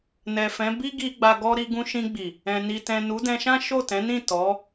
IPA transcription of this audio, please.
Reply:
n ɛ˨ f ɛ̃˨˦ b i˦ ɡ i˧ ɡ͡b a˧ ɡ ɔ˦ ɾ i˧ ɡ ũ˧ ʃ ĩ˧ ɡ͡b i˨ | ɛ̃˨ n i˨ t ɛ̃˨ n u˨˦ d ɛ̃˧ ʃ ã˦ ʃ o˦˨ t ɛ̃˨˦ n ĩ˦˨ t ɔ˨˦

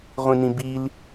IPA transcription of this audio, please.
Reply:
ʁʷ ĩ n ĩ b i l

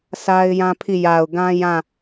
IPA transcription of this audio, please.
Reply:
sʰ a˦ ɪ̯ j ã˦ pʰ i˦˨ j a˨ ʊ̯ ɡ ã˦ j ã˦˨

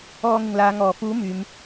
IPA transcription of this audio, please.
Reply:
ɔː˧ ŋ ɪ˨ ŋ l aː˨˧ ŋ ɔː˨˩ f uː˨˥ m yː˨˧ m

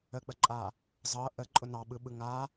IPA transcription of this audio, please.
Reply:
ə k͡p ə ǃʼ a | zˤ ɤ ʔ ə ǃʼ ʊ n ɑ ɓ ɯ ɓ ɯ ŋ a

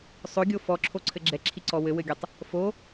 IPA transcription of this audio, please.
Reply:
sˤ ɵ ɡʲ o f ɔ ǁʰ o ǀʰ ɘ ɡ͡ǁ ɛ ǁʰ i ǀ ɔ w ɘ w ɘ ɡʲ ɛ tˤ | f o

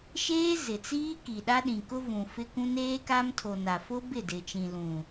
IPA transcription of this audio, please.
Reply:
ʃ eː˦ z ɪ˨ t͡s iː˦ k i˨ ɗ a˦ ɗ ĩ˨ k ʊ˦ v ũ˨ f ɪ˦ k ũ˦ n eː˦ k a˦ m tʰ o˨ n a˨ f ʊ˦ b ɪ˦˨ d ɪ˨ t͡ʃ ĩ˨ l ũ˨

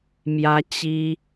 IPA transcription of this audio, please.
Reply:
m j ä˥ t͡ɕ i˥

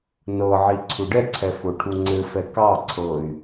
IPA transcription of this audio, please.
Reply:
n ɤ ʕ i ǀʰ u ɖ ɛ ǀʰ ɛ f o ʈʰ u ŋ͡ǀ ɘ f ɛ k ɑ ǀʰ ɤ y̯

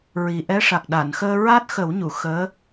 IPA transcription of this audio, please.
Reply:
ɹ i˨˩ ʔ ɛ˧˥ ʂ a˨˩ k̚ ɗ a˨˩˨ n x əː˧ ɹ a˦˥ t̚ x ə˨˩˦ w ɲ u˨˩˨ x əː˧˥

